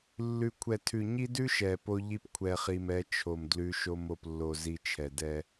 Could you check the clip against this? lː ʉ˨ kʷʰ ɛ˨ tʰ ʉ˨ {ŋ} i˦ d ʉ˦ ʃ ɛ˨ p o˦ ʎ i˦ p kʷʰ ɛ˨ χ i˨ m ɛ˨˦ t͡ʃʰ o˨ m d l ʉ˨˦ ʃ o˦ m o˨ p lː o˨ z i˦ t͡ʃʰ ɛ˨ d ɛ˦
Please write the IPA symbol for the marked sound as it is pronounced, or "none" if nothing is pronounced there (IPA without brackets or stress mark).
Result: ɲ